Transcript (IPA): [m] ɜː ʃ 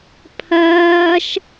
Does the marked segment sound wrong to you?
yes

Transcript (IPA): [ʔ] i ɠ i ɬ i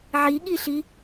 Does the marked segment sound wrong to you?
yes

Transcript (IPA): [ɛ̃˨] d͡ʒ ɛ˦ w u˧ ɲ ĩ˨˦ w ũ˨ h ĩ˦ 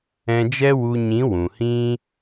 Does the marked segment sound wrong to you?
yes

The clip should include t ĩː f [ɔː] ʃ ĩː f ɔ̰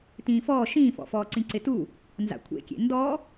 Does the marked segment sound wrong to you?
no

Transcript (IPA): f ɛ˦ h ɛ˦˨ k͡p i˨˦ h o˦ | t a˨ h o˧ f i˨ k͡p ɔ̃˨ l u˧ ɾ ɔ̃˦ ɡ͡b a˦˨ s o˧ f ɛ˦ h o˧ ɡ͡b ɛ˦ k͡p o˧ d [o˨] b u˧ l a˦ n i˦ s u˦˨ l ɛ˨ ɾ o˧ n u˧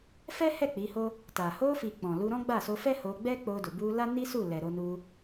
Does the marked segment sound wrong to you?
no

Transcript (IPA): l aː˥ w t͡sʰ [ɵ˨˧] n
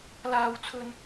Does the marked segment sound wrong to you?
yes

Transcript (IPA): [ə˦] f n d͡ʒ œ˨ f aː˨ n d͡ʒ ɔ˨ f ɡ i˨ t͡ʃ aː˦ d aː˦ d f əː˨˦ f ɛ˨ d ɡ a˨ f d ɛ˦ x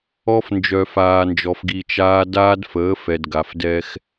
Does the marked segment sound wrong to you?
yes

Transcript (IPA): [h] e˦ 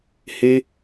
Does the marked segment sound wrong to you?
no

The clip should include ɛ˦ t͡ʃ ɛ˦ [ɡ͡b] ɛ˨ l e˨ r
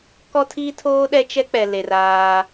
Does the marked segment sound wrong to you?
yes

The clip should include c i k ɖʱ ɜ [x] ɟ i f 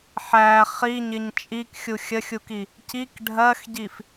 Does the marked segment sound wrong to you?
no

